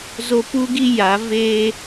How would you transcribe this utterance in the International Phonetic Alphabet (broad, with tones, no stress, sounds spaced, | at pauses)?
z o˦ p uː˦ ɡ i˦ j a˨˦ v eː˦